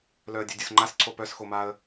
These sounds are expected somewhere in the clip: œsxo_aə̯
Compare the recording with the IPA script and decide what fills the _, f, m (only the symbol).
m